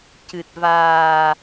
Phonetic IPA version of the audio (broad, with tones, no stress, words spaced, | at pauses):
cɨ˨˩t̚vaː˨˩